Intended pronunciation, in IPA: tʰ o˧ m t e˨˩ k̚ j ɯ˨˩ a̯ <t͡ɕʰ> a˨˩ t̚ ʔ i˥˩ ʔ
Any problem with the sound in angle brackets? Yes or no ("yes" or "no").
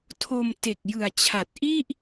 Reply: no